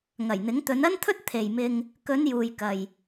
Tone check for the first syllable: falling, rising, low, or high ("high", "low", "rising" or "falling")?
low